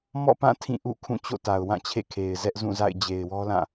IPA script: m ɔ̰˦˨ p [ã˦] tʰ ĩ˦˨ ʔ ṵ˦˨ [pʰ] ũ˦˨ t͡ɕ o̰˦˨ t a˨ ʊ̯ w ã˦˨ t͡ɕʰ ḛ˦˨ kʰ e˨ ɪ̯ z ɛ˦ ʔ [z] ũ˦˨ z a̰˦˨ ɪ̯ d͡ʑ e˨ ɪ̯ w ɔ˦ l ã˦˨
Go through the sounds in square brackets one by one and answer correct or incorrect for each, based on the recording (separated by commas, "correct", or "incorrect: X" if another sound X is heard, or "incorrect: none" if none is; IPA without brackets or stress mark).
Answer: incorrect: ã˦˨, incorrect: kʰ, correct